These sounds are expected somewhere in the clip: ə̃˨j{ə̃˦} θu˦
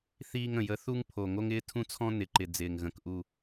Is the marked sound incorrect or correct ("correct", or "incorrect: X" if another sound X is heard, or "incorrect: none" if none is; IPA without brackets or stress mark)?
incorrect: ə˦